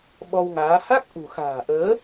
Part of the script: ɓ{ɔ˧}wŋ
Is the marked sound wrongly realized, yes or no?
no